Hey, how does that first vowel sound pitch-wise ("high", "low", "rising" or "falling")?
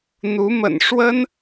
rising